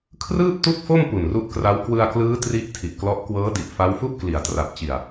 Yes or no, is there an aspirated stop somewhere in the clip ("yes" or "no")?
yes